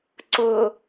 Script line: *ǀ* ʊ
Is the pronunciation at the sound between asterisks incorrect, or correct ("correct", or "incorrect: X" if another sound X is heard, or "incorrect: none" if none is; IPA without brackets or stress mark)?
correct